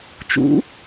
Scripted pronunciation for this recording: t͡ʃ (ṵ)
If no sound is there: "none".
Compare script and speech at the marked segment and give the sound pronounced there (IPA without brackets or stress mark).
ṵ